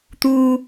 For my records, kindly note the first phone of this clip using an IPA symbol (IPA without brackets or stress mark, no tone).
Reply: t̪